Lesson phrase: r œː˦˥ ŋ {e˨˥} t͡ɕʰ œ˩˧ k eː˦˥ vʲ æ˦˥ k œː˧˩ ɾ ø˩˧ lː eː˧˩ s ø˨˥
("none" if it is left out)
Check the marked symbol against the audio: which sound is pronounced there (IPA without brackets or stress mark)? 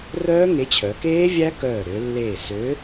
e˨˥